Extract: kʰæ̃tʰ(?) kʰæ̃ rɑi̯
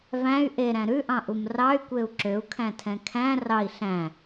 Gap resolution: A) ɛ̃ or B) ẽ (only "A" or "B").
A